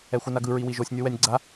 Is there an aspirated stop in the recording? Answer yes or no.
no